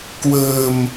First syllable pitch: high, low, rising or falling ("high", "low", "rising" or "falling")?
low